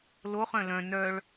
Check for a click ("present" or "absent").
absent